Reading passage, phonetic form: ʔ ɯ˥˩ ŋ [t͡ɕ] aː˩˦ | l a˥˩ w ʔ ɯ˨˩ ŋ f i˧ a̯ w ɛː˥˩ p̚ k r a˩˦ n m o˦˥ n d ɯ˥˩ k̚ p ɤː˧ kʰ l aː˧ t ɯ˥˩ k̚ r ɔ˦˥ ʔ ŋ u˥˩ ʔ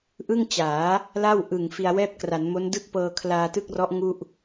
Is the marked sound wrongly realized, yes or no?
no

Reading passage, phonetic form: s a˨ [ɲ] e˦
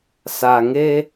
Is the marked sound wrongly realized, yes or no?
yes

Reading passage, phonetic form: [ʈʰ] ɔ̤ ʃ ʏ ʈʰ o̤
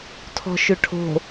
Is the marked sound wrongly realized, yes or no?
yes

